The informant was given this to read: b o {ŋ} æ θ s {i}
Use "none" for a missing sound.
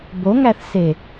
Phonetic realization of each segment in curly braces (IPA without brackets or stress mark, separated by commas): ŋ, e